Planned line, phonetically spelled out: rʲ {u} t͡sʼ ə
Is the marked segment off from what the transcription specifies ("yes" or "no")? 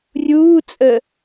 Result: yes